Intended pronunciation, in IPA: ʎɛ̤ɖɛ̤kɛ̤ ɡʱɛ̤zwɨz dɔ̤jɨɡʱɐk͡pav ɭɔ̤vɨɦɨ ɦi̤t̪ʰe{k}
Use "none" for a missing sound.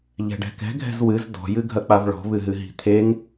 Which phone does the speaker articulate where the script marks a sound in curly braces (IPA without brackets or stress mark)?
ŋ